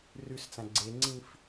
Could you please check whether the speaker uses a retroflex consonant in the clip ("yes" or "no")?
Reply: no